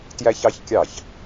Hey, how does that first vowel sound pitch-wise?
high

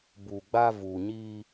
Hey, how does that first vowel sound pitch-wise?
low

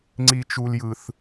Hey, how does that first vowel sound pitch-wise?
high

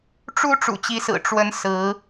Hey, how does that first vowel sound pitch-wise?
rising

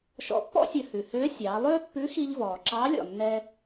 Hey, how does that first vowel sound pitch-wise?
rising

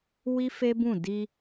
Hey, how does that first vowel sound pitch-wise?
high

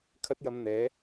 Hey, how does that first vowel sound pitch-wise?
high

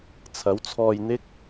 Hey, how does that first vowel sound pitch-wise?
rising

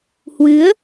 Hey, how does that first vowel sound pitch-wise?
rising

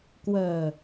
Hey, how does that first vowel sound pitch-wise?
low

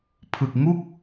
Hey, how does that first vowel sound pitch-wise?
low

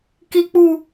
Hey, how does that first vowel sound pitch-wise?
low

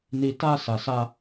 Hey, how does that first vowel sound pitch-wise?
low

